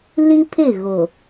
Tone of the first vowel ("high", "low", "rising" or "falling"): high